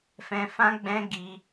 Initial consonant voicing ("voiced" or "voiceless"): voiceless